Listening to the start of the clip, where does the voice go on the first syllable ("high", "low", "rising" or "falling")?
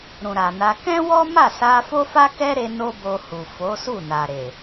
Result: low